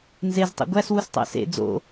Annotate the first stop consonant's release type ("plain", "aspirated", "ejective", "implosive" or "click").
plain